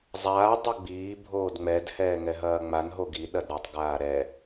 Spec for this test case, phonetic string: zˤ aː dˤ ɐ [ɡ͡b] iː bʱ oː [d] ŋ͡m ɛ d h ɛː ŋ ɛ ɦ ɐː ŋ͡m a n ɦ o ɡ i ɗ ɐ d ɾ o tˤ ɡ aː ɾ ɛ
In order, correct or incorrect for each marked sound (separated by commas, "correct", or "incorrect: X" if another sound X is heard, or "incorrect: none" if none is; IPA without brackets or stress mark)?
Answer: correct, correct